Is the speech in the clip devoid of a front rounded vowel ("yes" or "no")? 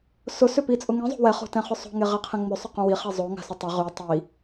no